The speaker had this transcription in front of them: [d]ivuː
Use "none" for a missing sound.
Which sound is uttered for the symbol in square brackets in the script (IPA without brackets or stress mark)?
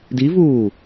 d